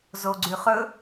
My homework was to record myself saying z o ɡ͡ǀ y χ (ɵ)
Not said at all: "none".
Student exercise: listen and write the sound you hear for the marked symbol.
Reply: ɵ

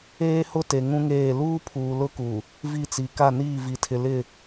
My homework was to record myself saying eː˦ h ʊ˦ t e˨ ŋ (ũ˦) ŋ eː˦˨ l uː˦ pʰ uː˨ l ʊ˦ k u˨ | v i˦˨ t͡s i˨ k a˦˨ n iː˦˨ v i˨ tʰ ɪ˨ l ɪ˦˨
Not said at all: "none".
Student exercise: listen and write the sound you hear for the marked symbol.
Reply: ũ˦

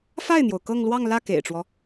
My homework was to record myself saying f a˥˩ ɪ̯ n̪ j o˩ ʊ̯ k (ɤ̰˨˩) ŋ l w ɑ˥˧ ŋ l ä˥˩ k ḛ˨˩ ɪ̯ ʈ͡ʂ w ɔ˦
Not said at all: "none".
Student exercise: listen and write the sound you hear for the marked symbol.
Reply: ɤ˥˧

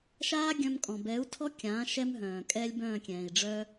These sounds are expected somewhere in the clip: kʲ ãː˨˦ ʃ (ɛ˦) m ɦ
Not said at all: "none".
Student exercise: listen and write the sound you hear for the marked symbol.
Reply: ɛ˦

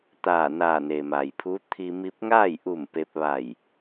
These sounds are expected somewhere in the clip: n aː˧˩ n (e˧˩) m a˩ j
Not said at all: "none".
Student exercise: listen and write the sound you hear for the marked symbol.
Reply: e˩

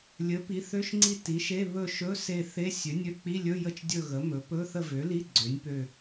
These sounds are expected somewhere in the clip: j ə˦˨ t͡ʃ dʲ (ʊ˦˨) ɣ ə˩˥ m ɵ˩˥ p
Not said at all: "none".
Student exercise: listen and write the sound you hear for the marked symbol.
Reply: ɵ˦˨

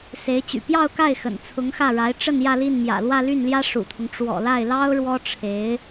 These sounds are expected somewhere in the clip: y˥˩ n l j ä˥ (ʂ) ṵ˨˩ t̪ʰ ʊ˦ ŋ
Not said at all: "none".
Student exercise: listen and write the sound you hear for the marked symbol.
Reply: ʂ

